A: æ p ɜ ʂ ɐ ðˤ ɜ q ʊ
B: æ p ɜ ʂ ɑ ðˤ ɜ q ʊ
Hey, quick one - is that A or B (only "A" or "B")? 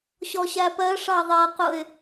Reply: B